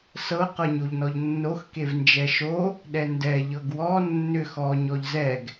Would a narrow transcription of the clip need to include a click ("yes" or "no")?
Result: no